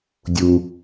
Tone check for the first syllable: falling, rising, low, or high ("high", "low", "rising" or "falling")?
low